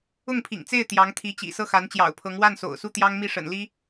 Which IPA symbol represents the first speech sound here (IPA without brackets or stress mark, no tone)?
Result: ʊ